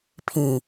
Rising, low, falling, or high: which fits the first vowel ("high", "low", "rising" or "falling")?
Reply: low